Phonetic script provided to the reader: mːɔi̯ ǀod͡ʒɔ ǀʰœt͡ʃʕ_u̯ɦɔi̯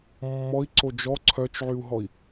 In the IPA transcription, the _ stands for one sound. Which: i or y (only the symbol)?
y